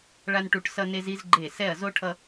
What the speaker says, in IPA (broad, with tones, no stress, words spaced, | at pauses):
ɭa˧nʈu˧˩ʈsʌ˧ne˧z i˧zɡ͡ǃe˧˩ sɛ˧˩ɐ̯zo˧ ʈʰʌ˧